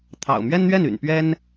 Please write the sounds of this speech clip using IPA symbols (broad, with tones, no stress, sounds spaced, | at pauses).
t̪ʰ ɑ̰˨˩ ʊ̯ m ɥ ɛ˥ n n̪ ɥ ɛ˥˩ n y̰˨˩ n p ɥ ɛ˥ n